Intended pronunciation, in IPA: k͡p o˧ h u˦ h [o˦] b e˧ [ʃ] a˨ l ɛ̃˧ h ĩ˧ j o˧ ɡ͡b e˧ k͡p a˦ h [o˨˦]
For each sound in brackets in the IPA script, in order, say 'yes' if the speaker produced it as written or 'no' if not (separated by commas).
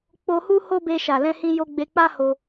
yes, yes, no